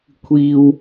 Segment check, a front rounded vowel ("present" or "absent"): absent